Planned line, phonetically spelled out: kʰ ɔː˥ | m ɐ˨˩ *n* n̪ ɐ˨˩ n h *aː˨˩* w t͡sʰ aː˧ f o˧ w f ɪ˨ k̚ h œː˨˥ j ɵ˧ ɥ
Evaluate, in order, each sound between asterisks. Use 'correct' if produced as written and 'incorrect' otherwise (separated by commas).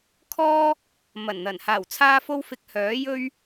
correct, correct